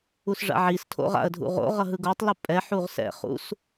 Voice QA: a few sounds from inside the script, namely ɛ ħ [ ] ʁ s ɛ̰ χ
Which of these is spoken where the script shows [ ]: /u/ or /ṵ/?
u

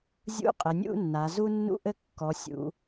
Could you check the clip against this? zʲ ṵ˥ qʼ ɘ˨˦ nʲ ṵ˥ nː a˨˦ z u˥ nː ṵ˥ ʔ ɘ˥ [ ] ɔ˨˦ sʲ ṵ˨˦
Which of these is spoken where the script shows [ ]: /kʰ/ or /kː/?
kː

